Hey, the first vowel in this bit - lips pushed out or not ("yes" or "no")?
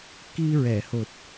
no